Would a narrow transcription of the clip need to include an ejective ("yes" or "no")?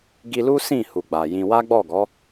no